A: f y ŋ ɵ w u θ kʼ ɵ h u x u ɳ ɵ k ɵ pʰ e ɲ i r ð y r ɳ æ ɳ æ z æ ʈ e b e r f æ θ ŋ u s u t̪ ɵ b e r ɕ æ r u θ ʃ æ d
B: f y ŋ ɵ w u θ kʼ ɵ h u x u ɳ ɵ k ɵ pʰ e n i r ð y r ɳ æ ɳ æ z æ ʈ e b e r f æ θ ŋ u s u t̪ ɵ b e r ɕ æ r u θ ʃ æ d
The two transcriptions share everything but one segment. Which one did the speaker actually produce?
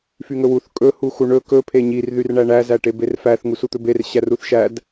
A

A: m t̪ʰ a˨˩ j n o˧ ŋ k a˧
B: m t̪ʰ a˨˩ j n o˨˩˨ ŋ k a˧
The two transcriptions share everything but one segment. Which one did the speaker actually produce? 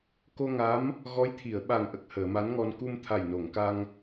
B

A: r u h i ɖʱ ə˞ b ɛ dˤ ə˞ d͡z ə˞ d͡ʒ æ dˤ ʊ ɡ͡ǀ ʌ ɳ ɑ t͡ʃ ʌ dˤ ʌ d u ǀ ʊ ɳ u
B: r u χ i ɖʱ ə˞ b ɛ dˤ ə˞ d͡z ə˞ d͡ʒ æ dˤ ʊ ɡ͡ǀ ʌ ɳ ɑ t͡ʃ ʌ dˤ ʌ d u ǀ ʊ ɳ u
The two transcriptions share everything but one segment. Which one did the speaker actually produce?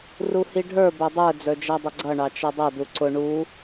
A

